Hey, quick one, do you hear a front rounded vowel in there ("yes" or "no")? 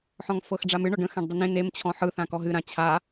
no